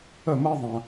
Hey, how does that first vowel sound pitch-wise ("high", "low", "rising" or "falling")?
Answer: falling